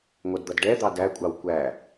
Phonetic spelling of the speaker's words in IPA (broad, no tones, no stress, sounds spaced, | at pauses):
ŋʷ ʌ d d̪ ʌ d ɖ ɛ d̪ ɑ d æ kʷʼ ɑ w kʷ æ